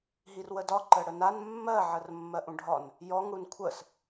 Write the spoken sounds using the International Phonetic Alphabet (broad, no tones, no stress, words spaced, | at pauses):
ɦirwədɒ ǃəɽənan mːɜ ʕərmːɜʔũɖʱɒn | jɔŋ ɽunkʷʰəs